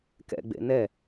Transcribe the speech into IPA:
k ɛ̰ ɡ͡b ḛ n ɛ

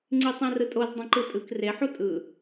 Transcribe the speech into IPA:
ŋ͡ǀ i tˤ ẽ r ɯ tʼ o z dˤ ũ ǃ ɯ tʼ ɯ k r e ħ u tʼ ɯ

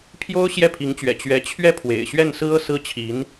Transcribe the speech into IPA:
pʰ j o˥ ʊ̯ ɕ j ɛ˥˩ pʰ i˧˥ ŋ t͡ɕ ɥ ɛ̰˨˩ t͡ɕ ɥ ɛ˧˥ t͡ɕʰ ɥ ɛ˥ pʰ w ḛ˨˩ ɪ̯ ɕ ɥ ɛ˥˩ n s ɹ̩˥ ɤ˥˧ s ɹ̩˥˩ t͡ɕʰ i˧˥ n

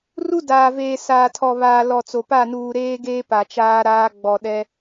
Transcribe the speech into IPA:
r u˦ d aː˨ v eː˨ s aː˨ tʰ ɔ˨ β aː˨ l ɔ˨ t͡s o˨ p a˦˨ n uː˨ ɾ eː˦ ɡ eː˦ p a˨ t͡ʃ aː˦ ɾ aː˦ ɡ͡b ɔ˨ ɗ ɛ˦

